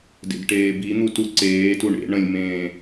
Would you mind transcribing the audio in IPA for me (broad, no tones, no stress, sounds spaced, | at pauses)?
d ḛ d ʈ eː b i n̪ u t u ǀ eː t u ɳ ḛ ɳ ə̃ lʲ m ẽː